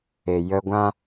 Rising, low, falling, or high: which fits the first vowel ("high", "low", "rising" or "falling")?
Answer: low